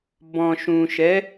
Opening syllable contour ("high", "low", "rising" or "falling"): low